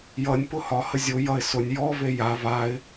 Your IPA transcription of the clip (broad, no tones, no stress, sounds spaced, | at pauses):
j ʌ nʲ p ʊ h ɒ h ə zʲ ʊ j ʌ ɪ̯ s ʊ nʲ j ɔ v e j a v a ɪ̯